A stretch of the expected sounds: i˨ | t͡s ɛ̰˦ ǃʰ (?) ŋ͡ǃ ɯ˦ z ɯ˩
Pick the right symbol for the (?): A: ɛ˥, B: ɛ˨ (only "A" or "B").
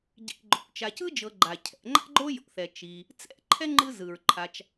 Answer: A